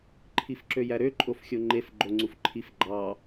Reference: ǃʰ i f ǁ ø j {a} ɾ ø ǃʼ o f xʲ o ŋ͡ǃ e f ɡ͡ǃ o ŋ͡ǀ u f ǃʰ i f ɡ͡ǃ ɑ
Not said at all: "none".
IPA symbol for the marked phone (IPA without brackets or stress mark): æ